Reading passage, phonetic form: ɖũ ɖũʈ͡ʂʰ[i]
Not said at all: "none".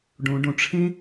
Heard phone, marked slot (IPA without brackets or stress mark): ĩ